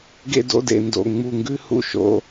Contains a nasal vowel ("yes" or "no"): no